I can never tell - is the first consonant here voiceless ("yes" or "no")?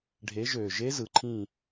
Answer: no